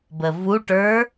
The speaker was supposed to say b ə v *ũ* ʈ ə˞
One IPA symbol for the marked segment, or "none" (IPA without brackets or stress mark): u